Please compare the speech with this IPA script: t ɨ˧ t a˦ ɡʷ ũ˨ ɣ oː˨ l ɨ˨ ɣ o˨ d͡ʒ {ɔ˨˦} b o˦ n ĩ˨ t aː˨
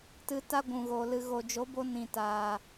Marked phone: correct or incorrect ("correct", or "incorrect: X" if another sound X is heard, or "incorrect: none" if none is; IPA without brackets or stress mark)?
incorrect: o˨˦